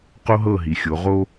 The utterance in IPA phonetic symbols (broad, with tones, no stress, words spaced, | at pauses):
qo˦ɦɤ˦˨ɦi˨xʲo˨˦ ʁo˦